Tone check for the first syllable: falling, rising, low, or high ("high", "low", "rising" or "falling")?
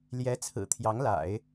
rising